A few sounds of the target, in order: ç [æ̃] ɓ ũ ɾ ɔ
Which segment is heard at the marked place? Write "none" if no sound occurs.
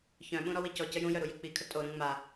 œ̃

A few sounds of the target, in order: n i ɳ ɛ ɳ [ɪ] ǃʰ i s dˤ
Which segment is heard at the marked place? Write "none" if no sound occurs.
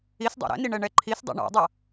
ɛ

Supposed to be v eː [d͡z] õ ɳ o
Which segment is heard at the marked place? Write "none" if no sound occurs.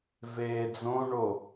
d͡z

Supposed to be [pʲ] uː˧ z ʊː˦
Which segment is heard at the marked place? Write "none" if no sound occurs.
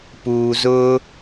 p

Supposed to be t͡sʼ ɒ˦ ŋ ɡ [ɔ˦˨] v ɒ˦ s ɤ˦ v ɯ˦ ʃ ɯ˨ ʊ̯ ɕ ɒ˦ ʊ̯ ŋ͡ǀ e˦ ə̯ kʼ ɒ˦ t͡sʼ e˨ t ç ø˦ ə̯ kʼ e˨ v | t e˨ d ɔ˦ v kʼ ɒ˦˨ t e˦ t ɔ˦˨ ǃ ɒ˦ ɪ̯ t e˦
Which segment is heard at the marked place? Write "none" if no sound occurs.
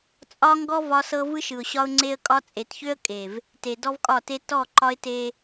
ɔ˦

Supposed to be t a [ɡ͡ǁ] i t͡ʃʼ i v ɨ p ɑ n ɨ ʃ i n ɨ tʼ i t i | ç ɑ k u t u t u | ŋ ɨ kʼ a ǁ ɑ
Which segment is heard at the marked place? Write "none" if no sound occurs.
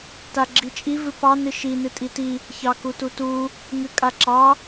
ɡ͡ǁ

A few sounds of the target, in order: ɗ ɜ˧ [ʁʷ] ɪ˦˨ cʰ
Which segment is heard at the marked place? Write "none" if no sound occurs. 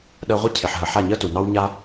ʁʷ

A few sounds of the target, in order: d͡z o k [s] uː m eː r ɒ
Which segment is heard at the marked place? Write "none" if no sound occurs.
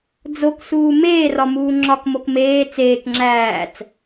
s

